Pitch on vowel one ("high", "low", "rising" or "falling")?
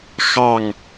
falling